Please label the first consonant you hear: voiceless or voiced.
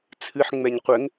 voiceless